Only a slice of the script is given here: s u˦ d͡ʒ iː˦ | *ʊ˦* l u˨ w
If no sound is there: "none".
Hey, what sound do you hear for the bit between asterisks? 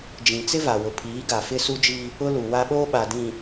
ʊ˦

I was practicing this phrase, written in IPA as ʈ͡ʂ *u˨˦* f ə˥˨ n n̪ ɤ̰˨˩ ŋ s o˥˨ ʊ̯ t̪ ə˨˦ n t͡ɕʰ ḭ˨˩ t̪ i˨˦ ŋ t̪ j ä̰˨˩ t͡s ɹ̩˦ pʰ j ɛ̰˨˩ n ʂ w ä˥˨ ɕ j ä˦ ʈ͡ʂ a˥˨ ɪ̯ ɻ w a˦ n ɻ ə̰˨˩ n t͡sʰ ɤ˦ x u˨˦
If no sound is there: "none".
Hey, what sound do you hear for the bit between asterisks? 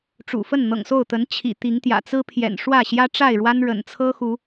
ṵ˨˩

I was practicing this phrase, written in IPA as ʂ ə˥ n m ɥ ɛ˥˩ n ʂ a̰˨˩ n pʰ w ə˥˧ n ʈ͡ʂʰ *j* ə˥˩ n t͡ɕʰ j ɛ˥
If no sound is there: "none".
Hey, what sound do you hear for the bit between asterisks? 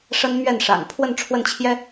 w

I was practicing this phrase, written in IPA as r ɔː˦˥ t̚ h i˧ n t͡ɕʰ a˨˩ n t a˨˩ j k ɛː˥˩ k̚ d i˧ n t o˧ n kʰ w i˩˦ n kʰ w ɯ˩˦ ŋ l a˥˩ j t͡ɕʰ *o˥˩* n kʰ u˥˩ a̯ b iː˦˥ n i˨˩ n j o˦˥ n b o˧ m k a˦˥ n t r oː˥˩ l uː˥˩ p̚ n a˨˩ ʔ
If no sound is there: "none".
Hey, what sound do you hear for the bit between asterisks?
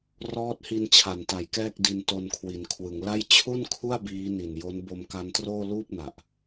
u˥˩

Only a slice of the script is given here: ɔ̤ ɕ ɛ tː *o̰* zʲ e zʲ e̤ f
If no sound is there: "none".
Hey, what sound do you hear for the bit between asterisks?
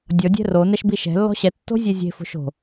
o̤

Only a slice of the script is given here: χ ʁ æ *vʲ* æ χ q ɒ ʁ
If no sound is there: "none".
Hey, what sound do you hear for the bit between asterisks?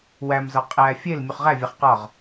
vʲ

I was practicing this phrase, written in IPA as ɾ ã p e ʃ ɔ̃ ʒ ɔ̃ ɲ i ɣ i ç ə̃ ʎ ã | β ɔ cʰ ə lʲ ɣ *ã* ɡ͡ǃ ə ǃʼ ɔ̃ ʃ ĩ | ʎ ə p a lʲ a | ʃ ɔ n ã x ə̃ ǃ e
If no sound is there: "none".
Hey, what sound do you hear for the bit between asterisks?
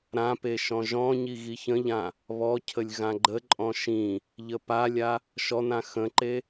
ã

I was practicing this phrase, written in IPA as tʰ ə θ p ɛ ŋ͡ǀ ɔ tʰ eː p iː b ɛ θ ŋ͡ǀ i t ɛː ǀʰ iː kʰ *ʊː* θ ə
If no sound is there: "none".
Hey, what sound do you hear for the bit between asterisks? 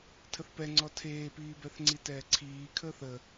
əː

